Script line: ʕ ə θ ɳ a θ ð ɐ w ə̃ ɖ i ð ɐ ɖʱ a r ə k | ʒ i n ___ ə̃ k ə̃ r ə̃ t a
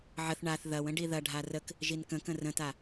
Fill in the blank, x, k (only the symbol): k